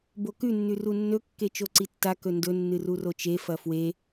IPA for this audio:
bokʉ nːʉrunːɵ kːet͡ʃoǀitːa kɵndɵ nːɨrurot͡ʃe fɐfwe

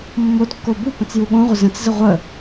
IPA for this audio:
mːodkːo bupə̃t͡s juɠõʁʷə zə̃t͡szə ʁʷə

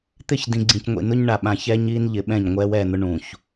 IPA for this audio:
t̪ɪ˦˨ç dĩ˨ɡ͡ǀĩ˨cŋʷḭ˨ nʊ˦ɲɳa˨ ɓã˨çɛː˦ɲ iː˦nʎɪ˨˦ɓɛ̃˦˨ɲ ŋʷɛː˦wɛː˦˨n̪ʊ˦ ɳũ˨ç

